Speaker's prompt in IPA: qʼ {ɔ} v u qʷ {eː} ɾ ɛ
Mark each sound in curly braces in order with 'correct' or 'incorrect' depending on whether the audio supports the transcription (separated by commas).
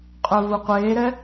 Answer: incorrect, correct